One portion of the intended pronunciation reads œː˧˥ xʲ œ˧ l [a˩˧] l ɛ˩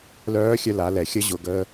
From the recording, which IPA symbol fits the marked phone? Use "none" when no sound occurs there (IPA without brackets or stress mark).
a˩˧